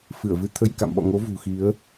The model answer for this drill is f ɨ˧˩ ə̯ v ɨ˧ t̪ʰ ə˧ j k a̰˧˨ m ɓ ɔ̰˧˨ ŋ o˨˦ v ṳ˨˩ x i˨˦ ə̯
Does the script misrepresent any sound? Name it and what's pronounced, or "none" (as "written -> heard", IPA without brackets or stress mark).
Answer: none